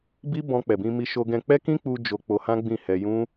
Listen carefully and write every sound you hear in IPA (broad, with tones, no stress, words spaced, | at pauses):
bi˦ bɔ̃˧k͡pɛ˨bĩ˧ mi˧ʃo˧ɡɛ̃˧ k͡pɛ˦kĩ˦k͡pu˧ d͡ʒo˧ k͡po˧hã˦ ɡ͡bĩ˦˨hɛ˧ jũ˦